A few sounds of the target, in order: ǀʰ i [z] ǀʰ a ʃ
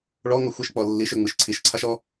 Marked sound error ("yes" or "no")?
yes